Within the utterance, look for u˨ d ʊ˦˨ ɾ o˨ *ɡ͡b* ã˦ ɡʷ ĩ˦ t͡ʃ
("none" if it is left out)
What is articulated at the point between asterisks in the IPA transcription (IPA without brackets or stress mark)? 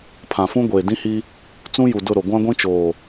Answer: ɡʷ